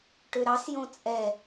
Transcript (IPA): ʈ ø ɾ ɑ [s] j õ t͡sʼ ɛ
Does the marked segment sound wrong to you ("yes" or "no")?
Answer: no